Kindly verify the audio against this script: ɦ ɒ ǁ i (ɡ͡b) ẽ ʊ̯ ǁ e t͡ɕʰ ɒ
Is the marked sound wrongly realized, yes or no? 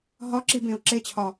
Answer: yes